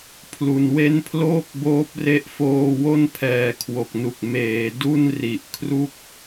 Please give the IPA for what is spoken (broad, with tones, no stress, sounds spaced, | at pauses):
pʰ l u˨˩ n w e˥˩ n pʰ l oː˥˩ k̚ b oː˦˥ p̚ r e˦˥ ʔ f oː˧ w o˥˩ n pʰ ɛː˨˩ kʰ w o˨˩ k̚ n u˨˩ k̚ m eː˩˦ d u˥˩ n r i˨˩ ʔ kʰ r u˥˩ k̚